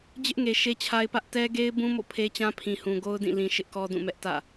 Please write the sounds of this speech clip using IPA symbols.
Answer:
d͡ʑ ɪ˦ ʔ ŋ e˨ ʃ e˦ t͡ɕʰ a˦ ɪ̯ p ä˦ ʔ t ɛ˦ ɡ e˦ ɪ̯ b ũ˦ m o̰˦˨ pʰ e˦ t͡ɕ ã˦ pʰ ĩ˨ h ũ˨ ɡ o˦ ʊ̯ d ĩ˦˨ l ĩ˦ ʃ ɪ˦ ʔ k ɔ˦ d ũ˦˨ m ɛ˦ ʔ t ä̰˦˨

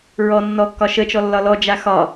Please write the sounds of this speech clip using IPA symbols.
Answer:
ɹ ɔ nː ɔ kː ɒ ʃ ə t͡ʃ ɔ lː ɒ l ɔ d͡ʒ a x ɒ

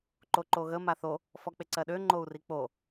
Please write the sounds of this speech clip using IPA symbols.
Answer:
ǃ o ǃ o ɣ ə m a θ o | f ɔ k͡p e ǀ ɜ ɗ ø ŋ͡ǃ o u̯ r i k͡p o

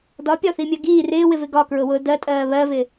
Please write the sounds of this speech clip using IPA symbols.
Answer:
d ɒ pʲ ɒ θ i mʲ ɜ ɡ iː r ɪː w ɪ v ɪ ɡ ɒ k ɹ ʊ w ʊː d ɜ tʼ ɜː β ɜ v ɪː

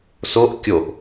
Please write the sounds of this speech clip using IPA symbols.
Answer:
s o ʔ kʲ o ʔ

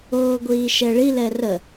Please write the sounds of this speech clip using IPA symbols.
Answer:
oː ɡʷ iː ʃ ɛ ɭ i l ɛ r ə

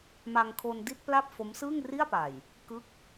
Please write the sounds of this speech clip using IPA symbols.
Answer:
m a˧ ŋ kʰ o˧ n d i˥˩ t̚ p l a˥˩ p̚ f o˦˥ m s ɯː˥˩ ŋ r i˥˩ a̯ p a˨˩ j | k ɯ˦˥ k̚

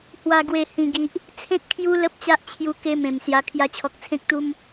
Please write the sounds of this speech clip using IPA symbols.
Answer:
h w a˨˩ ɡ w e˨˩ h ĩ˨˩ ɡ i˨ ʔ | t͡sʰ ẽ˦ t̚ kʰ j u˦ l ə˦ p̚ t͡ɕ a˦ ʔ t͡ɕʰ j u˧ k e˦ m ẽ˨˩ m s j a˧ kʰ j a˧ t͡ɕʰ ɔ˨ k̚ t͡sʰ ẽ˦ k̚ t̪ u˦ m

